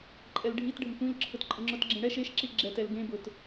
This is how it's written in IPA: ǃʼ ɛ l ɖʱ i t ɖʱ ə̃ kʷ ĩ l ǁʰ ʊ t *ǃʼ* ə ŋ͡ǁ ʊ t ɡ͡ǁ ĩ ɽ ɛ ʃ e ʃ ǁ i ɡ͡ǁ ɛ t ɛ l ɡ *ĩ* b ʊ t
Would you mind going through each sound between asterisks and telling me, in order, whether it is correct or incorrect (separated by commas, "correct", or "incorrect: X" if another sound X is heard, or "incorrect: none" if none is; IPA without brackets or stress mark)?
correct, incorrect: ẽ